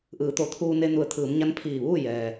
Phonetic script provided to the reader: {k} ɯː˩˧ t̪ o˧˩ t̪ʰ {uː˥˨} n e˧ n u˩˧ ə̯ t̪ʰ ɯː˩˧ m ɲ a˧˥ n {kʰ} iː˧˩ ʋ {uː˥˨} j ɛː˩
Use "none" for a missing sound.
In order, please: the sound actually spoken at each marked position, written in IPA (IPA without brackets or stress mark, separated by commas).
ʔ, uː˧, pʰ, uː˥˨